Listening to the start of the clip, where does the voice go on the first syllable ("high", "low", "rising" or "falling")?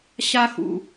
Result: high